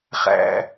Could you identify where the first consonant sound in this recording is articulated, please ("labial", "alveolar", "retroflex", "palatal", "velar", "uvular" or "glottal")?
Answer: uvular